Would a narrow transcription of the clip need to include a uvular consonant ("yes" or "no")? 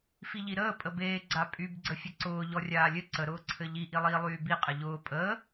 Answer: yes